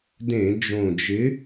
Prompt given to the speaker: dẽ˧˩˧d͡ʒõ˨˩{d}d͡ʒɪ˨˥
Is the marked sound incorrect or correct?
incorrect